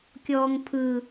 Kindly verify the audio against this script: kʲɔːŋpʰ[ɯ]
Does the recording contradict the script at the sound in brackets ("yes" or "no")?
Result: no